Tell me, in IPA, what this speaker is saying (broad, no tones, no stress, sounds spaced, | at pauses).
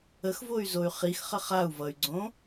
ə x v o y̯ z o y̯ χ i x χ ə χ a u̯ v ʌ y̯ ɡ͡ǀ õ